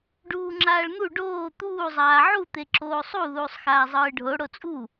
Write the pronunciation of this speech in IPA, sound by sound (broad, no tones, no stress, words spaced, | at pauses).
ɖuːŋ͡ǁaːɭn̪u ɖoː t̪uː zˤaːʕut̪e ǁoːsˤu ðuːsˤxaːzˤɯːɖʱo ɽot͡sʼu